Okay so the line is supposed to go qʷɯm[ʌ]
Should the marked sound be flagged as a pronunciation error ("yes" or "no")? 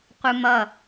no